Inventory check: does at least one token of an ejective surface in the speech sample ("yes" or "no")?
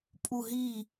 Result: yes